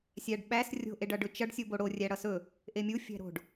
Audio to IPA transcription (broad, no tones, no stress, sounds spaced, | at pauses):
sʲ æ ɖ ɓ æ s rʲ o̤ ʔ e ɖ ʌ ɖ ɵ t͡ʃ ʌ ɖ sʲ u b o ɽ o rʲ æ ɽ ʌ s ɵ | ʔ e mʲ u fʲ æ̤ ɾ o̤ ɖ